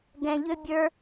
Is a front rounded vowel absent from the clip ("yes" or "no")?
no